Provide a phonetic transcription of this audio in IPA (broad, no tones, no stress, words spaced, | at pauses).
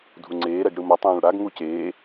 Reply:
dʱuŋ͡ǀeːɾɛɡ ɽɯmʌ tˤõːɭɽaɡ ŋuceː